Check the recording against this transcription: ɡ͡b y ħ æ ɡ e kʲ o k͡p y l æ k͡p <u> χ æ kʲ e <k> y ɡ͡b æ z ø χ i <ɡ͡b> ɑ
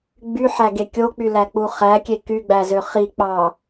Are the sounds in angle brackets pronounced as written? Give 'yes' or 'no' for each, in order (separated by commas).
yes, yes, no